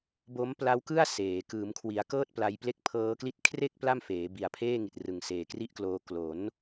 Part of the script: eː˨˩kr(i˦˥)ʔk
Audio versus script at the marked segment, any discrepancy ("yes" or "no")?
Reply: yes